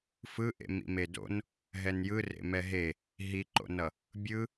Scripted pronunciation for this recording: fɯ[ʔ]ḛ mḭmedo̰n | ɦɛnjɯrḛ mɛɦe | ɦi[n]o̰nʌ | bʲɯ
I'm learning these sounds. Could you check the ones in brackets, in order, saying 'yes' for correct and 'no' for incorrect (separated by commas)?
yes, no